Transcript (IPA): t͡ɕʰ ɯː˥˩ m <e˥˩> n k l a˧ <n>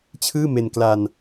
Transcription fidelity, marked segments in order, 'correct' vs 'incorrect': incorrect: e˧, correct

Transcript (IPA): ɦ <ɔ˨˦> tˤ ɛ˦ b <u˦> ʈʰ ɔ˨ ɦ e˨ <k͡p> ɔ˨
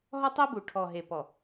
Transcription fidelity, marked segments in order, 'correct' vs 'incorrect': incorrect: ɔ˦, incorrect: u˨, incorrect: p

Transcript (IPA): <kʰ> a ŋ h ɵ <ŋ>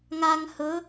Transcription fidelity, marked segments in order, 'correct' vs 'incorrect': incorrect: ŋ, incorrect: none

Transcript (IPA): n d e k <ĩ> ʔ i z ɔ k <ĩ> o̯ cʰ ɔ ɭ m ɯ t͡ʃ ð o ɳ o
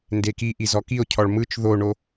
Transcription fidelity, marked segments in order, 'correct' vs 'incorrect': incorrect: i, incorrect: i

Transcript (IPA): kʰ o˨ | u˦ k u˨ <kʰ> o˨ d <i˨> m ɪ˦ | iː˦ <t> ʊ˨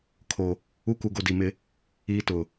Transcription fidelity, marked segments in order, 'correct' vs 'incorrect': incorrect: ɡ, correct, correct

